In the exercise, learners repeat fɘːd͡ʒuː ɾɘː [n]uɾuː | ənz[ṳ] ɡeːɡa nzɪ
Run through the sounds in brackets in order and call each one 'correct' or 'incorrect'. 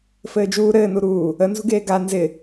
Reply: correct, correct

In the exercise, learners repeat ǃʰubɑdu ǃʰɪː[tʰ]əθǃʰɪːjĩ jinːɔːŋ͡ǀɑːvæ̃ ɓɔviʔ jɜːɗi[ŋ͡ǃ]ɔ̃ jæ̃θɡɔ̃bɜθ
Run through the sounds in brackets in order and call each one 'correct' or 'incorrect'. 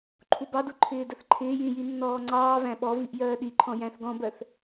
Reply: incorrect, incorrect

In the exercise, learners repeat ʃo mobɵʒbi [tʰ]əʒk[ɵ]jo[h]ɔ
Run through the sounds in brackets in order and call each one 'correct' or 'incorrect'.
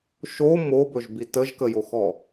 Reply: incorrect, incorrect, incorrect

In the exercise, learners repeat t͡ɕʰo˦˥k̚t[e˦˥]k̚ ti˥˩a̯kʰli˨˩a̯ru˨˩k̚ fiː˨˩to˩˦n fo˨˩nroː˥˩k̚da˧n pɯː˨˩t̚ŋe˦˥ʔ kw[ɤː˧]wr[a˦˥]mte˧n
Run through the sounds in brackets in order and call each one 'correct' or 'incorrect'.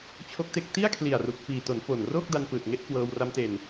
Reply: correct, correct, correct

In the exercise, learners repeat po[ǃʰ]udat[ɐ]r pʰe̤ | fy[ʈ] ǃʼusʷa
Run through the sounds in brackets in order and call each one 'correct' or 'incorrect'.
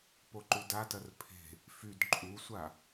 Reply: incorrect, correct, incorrect

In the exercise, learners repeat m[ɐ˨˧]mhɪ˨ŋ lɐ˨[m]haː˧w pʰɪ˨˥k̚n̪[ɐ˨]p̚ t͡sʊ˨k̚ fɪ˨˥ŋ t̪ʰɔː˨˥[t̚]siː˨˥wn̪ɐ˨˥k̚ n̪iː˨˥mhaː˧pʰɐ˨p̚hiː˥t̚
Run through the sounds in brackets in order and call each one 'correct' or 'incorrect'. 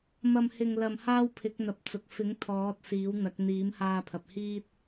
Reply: incorrect, correct, correct, correct

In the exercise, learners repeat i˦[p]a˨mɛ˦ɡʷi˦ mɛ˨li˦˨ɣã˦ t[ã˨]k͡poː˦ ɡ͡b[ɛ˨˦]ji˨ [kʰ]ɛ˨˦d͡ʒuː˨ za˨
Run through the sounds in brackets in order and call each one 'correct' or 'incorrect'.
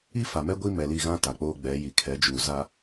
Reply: incorrect, incorrect, correct, correct

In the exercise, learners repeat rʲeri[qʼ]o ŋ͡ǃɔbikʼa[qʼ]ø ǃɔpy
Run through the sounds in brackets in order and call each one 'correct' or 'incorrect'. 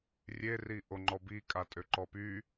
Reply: incorrect, incorrect

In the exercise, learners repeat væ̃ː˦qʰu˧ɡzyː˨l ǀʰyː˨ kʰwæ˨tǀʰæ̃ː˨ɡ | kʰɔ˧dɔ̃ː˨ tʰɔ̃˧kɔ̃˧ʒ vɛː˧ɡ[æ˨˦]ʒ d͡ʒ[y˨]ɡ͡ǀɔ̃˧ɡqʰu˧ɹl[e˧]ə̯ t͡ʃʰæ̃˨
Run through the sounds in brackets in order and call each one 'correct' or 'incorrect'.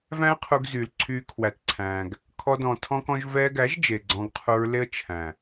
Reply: correct, incorrect, incorrect

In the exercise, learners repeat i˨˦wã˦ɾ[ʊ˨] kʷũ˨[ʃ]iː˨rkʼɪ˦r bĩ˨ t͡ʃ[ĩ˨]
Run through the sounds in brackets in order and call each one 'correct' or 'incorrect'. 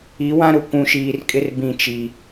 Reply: correct, correct, incorrect

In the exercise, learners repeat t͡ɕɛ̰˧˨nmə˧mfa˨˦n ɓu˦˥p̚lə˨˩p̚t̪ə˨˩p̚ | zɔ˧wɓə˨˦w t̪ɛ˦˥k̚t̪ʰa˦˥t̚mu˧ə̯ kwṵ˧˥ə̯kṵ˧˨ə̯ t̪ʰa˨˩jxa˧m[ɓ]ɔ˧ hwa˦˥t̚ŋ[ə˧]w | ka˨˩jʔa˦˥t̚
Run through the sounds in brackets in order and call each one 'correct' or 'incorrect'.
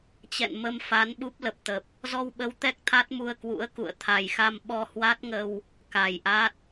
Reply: correct, correct

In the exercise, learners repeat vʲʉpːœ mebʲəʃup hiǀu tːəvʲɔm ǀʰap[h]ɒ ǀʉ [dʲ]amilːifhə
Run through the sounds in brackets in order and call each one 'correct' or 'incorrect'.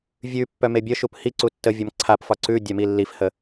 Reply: incorrect, correct

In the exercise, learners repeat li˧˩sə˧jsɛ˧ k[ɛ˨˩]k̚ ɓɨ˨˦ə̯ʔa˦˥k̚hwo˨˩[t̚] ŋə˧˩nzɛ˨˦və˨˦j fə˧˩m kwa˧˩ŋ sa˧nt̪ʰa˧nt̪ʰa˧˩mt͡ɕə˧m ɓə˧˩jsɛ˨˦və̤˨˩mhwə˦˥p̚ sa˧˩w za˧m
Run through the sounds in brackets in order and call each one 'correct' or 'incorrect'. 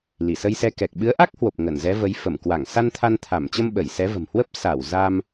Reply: correct, incorrect

